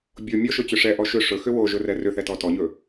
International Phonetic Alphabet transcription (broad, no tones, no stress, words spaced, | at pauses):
bʲo mʲɔʃɵt͡ɕʏ ʂɛʔɔ ʃʏ ʂɵxʏ woʒɵrɛ rʏθɛtɔ tɔɲɵ